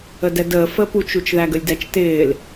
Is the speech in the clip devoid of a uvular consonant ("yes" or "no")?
yes